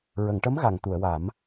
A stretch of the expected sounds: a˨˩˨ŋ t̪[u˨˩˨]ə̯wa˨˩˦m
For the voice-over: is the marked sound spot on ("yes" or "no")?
yes